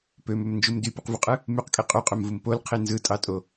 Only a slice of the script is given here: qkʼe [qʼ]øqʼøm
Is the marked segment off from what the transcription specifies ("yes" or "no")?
no